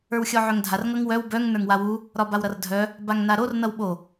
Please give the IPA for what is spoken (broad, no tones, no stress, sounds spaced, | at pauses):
ə˞ w xʲ ɔ ʕ œ ŋ dʱ a r ŋ ʌ ŋ w œ w b œ ŋ n ə˞ ŋ w a w u | ɾ ɒ b a w ɾ ʌ r dʱ œ | b a ŋ n a ɾ o r n ʌ w ɓ o